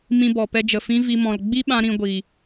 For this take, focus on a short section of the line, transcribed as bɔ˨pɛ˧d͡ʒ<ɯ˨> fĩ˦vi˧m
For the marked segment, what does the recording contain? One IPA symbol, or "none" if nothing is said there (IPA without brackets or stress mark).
ə˨